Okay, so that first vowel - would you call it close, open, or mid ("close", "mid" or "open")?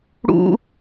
close